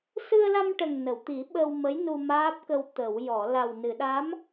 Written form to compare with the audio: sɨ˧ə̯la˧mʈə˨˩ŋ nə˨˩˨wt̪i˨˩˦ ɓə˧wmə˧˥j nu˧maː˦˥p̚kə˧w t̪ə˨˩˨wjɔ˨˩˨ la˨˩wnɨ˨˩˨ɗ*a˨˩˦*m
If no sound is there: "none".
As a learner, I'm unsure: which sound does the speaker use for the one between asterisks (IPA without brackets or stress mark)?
a˧˥